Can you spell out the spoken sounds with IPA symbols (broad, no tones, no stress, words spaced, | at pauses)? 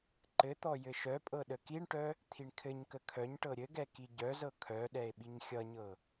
ǃɘt̪ɔ jɘʃœpʼɤ ɗəkiɳʈœ | t̪ʰiɳkʰɘɲkə kʰœɲʈɤ ɾʲɘɡɛ kiɟœzɤ kʰœɗɛe̯ ɓiɲxʲʌɲɤ